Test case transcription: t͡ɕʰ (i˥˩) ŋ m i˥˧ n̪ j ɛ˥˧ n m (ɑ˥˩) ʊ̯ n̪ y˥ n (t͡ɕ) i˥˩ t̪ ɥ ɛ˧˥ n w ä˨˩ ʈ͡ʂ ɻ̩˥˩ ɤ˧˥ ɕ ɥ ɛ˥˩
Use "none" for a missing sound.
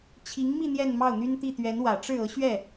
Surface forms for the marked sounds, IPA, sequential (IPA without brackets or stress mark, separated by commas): i˧˥, ɑ˥˩, t̪